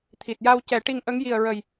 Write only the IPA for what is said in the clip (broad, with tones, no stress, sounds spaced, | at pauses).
t̪ʰ i˨˩ t̚ j a˧ w c ɛ˨˩˦ ʈ i˧ ŋ ʔ ə˧˥ ŋ j i˨˩ ə̯ ɹ ə˨˩ j